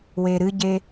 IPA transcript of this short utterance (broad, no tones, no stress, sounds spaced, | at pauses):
w e ɾ ɨ ɟ e